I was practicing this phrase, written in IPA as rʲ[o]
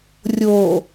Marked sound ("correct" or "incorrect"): correct